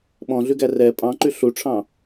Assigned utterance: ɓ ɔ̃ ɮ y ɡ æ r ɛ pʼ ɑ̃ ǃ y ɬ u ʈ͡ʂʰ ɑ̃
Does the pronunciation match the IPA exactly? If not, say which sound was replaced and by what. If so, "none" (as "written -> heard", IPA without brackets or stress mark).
none